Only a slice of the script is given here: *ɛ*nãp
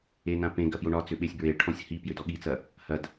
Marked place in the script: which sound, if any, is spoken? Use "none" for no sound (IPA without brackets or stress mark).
e